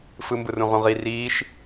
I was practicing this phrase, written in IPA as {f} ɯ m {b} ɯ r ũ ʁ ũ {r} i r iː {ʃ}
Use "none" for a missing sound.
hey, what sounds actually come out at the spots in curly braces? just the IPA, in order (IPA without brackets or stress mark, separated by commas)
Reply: f, b, ʁ, ʃ